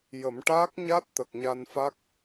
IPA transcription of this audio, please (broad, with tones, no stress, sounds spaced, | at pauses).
j ə˨˩˦ m ʈ aː˦˥ k̚ ɲ a˦˥ t̚ t̪ ə˨˩ k̚ ɲ a˧ n f a˦˥ k̚